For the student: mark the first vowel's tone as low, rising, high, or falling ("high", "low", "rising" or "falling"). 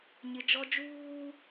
high